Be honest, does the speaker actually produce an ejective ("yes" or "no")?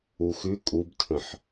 yes